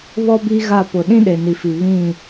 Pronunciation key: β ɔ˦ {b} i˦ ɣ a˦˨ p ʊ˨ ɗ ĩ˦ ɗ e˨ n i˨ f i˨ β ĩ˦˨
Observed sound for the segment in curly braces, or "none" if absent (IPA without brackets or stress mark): b